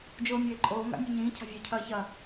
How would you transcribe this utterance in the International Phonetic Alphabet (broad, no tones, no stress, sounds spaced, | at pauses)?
d͡ʒ oː mʲ eː ǃʼ oː ŋ a̰ mʲ ʉ ɲ ĩː cʰ a̤ vʲ ɐː cʰ ɐː ç ɐː